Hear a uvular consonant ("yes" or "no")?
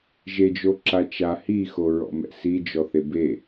no